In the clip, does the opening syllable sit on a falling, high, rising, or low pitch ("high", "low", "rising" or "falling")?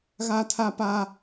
high